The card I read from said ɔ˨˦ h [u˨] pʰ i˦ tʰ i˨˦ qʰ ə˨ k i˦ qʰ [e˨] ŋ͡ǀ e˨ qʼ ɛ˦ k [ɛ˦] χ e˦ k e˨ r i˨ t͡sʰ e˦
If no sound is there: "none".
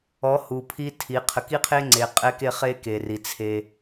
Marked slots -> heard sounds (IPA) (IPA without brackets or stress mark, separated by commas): u˨, e˦, e˦